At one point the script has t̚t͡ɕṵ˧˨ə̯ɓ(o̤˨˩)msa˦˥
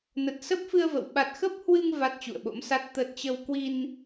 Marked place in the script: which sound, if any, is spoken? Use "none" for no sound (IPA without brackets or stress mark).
o̰˧˥